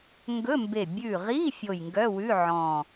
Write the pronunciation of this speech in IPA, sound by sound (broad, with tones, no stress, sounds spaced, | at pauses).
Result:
ŋ ɡ ɵ˧˥˧ m b e˧˩ bʲ ʉ˧˩ ʁ i˧˥˧ fʲ o˧˩ j ŋ ɡ œ˧˥˧ w ʉ˧˥˧ ʕ ɔ̃˧˩